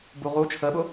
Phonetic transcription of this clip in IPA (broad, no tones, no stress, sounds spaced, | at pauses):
b u ʁ u t͡ʃʰ ə ɓ ʊ